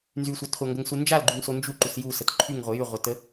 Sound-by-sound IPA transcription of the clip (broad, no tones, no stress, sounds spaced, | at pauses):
n z y sʷ a t χʷ a ŋ ɡ ə ŋ s u n d͡ʒ a l ɡ͡ǃ y ŋ s o n d͡ʒ u ǃ u s j u s ə t ǃʰ y ŋ ʁʷ ə j y ʁʷ ə t ə